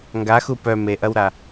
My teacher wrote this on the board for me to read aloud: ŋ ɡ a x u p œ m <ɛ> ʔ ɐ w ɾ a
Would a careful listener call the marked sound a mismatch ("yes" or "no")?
yes